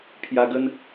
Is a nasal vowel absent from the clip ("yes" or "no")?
yes